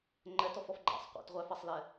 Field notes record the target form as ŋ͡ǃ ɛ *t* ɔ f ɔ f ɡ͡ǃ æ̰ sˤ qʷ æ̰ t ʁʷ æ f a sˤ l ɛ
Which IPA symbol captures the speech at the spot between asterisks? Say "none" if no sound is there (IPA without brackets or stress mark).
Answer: t